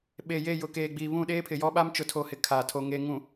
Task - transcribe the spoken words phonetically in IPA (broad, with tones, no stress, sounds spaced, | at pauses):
ɓ e˨ j e˦˨ j ʊ˨ k eː˨ ɡ͡b iː˨ β ũ˦˨ ɗ eː˦ pʰ ɪ˨ j ɔ˦ ɓ a˦ m t͡ʃ ʊ˨ tʰ o˨ h ɪ˨ kʰ a˨ tʰ o˨ ŋ e˨ ŋ ũ˨